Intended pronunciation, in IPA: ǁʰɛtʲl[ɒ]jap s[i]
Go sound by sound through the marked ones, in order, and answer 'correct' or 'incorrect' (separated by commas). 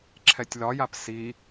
correct, correct